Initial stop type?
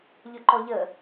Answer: click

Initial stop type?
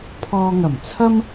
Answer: aspirated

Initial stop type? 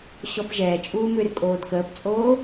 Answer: plain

